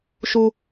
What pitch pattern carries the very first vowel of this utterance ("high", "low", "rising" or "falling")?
high